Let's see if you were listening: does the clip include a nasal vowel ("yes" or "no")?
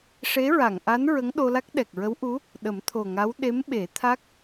no